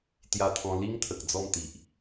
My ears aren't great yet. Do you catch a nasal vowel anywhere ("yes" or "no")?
yes